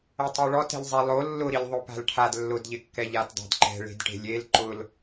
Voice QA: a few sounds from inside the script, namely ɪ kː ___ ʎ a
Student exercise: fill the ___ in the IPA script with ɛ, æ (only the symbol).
ɛ